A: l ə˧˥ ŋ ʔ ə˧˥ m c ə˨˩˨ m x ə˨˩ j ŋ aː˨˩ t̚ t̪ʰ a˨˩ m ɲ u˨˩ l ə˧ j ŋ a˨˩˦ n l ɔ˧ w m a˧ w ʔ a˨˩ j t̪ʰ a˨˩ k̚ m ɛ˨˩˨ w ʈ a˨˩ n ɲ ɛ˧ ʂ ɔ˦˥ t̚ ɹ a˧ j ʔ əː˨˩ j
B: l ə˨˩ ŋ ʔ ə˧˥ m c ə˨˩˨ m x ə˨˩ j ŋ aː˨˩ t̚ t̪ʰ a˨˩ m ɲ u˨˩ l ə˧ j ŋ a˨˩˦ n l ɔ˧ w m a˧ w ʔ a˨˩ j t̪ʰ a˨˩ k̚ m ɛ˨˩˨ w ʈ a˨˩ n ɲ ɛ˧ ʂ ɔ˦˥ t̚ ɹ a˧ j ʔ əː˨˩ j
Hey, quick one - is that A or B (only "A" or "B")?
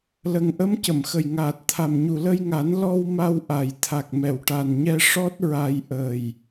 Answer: B